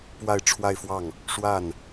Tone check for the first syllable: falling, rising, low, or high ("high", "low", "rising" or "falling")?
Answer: falling